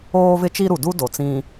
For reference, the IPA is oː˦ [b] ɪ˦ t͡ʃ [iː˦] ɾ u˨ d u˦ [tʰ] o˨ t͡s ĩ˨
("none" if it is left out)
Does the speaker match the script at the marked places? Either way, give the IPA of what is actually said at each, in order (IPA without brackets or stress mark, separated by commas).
v, i˦, d